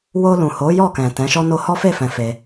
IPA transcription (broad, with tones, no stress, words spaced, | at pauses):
wo˧lũ˨ho˨˦ jɔ˦˨ kɛ̃˨ tɛ̃˨˦ʃɔ˦no˦ hɔ˦fe˦˨ fɛ̃˨ fe˧